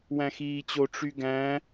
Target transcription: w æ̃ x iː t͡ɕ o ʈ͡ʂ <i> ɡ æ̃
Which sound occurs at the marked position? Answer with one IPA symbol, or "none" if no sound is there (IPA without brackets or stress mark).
y